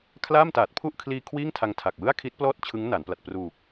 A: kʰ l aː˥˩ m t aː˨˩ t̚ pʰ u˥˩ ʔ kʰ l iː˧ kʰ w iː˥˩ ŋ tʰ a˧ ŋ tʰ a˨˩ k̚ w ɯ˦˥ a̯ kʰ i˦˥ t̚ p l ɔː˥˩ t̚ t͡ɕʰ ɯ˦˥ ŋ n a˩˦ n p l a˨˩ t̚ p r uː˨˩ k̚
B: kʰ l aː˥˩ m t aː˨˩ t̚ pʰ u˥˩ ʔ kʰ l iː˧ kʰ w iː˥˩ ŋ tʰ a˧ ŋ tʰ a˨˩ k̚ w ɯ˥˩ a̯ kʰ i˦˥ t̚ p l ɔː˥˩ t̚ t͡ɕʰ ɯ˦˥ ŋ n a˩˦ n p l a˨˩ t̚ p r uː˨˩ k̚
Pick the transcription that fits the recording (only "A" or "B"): B